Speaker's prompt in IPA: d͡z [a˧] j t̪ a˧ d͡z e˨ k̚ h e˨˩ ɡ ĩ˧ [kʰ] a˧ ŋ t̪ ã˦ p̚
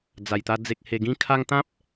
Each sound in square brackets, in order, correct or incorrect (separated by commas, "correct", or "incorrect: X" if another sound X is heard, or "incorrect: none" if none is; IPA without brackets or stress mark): incorrect: a˨˩, correct